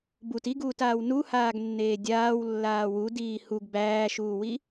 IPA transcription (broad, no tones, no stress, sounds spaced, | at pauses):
b u t i ɡ uː t aː w n u h aː ɡ nː eː dʲ aː w lː aː w u d iː h u ɡ b æː ʃ uː w i